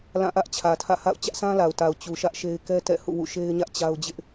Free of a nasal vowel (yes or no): no